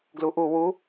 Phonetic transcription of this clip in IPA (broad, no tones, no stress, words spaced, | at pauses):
ɡluʔu wu